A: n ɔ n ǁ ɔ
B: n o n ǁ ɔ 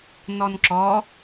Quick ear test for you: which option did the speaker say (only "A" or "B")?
A